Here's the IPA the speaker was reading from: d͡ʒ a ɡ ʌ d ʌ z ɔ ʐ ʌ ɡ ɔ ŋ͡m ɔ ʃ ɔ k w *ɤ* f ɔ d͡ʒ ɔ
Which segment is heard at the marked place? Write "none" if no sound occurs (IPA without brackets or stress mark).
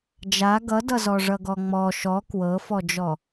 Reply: ɤ